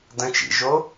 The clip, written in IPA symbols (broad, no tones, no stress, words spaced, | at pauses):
də̃ t͡ʃḭʒo